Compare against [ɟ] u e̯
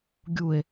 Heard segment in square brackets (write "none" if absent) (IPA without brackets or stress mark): ɡʲ